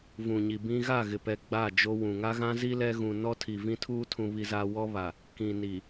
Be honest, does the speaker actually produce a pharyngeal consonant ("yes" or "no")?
no